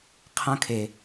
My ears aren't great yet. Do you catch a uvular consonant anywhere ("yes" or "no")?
yes